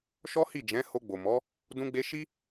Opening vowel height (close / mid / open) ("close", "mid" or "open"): mid